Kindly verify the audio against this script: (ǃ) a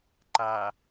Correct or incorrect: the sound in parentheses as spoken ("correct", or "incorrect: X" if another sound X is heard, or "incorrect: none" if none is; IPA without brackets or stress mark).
correct